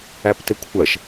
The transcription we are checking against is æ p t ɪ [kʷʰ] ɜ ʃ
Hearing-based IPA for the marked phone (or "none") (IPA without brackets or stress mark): kʷʰ